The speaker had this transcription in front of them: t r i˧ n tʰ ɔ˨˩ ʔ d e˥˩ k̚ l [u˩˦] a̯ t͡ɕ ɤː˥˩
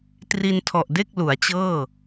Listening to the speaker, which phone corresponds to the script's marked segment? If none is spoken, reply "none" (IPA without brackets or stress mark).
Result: u˩˦